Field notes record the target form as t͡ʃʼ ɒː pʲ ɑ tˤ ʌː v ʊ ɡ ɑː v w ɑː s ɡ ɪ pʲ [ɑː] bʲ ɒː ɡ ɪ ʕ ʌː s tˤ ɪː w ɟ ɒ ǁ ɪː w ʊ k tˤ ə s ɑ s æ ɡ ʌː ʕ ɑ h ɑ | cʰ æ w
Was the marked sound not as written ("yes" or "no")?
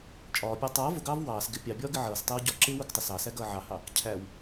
yes